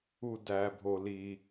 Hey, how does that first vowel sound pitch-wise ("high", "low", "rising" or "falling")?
low